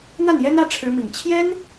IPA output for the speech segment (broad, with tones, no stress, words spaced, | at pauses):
n̪a˥˩njɛ˥nä˧˥ ʈ͡ʂʰɻ̩˧˥mi˨˩ŋ t͡ɕʰjɛ˥n